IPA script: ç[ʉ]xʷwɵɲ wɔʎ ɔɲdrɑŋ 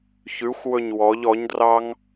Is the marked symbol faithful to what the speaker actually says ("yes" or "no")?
yes